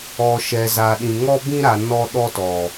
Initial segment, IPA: ɔ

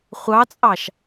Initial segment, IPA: χʷ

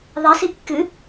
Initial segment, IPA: ðˤ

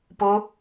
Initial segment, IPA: p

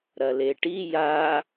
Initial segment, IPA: ɾ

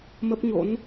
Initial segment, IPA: m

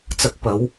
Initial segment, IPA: t͡s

